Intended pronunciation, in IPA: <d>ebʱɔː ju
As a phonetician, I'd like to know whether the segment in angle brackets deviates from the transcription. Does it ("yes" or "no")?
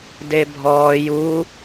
no